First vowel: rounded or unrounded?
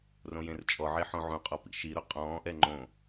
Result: rounded